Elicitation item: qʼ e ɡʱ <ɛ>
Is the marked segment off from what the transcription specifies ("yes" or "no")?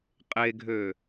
yes